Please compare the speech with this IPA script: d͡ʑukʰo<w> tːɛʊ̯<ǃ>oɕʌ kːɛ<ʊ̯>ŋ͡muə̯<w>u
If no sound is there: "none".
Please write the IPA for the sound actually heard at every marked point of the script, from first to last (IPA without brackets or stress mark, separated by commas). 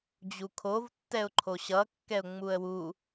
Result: v, ǃʰ, ʊ̯, w